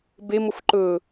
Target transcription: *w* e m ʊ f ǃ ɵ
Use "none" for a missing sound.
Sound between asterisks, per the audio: b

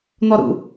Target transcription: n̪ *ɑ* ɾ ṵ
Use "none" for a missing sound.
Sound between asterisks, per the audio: ɔ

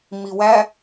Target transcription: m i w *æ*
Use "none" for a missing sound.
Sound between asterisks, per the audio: æ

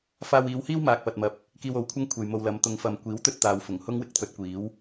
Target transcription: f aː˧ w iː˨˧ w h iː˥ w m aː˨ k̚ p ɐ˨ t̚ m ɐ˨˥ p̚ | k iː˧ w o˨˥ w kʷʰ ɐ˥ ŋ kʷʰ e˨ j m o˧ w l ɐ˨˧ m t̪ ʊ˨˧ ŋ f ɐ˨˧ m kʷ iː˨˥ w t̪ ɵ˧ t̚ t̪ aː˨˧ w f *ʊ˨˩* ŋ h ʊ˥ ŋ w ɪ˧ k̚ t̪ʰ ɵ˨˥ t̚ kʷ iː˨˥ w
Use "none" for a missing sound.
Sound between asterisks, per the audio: ʊ˨˩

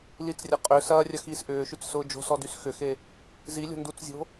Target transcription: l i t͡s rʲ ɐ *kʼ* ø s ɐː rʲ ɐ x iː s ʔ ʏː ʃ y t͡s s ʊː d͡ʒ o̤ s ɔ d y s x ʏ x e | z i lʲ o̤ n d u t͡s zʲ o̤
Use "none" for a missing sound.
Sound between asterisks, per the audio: qʼ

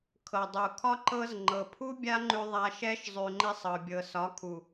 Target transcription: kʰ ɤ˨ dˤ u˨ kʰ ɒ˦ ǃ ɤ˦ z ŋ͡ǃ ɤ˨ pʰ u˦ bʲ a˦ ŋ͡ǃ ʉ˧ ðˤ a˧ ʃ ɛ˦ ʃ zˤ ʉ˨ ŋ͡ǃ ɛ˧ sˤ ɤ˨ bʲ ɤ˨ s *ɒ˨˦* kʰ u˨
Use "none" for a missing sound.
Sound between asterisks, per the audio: ɒ˨˦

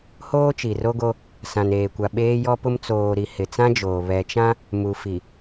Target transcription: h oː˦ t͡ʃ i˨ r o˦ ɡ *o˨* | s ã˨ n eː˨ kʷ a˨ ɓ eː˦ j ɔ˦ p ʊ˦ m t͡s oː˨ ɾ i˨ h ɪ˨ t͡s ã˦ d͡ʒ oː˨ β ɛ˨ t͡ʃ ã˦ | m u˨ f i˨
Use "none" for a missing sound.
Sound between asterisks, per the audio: o˦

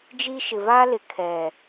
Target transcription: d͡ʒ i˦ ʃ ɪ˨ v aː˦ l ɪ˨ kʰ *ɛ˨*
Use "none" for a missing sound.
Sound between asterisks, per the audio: ɛ˨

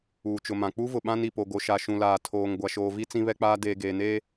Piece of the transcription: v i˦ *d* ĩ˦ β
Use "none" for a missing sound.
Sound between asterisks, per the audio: t͡s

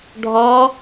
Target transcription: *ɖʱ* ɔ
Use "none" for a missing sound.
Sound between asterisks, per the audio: ɖʱ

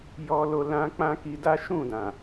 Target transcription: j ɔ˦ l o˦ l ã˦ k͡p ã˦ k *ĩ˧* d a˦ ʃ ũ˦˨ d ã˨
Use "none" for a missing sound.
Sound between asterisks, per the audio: i˧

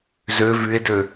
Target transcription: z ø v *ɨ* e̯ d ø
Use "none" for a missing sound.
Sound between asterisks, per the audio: y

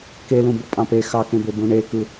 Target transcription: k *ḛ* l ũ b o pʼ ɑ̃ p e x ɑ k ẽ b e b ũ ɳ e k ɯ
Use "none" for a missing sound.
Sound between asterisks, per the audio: e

